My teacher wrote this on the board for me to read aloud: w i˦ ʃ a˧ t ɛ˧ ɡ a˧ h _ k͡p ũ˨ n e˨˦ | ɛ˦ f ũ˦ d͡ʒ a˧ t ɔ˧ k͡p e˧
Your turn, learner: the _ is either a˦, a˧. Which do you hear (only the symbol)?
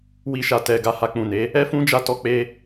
a˧